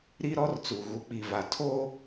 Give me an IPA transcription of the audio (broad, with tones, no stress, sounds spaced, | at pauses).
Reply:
ɾ i˦ ɾ ɔ˦ r t͡s u˨ ɣ u˨ k͡p i˨ v a˨ tʰ o˦